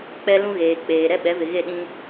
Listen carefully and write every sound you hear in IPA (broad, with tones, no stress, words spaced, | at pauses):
k͡pɛ˦lũ˦ɣeː˨ k͡peː˨ ɾɛ˦ɓɛ˨˦vɪ˨ ɣe˦˨ɗĩ˦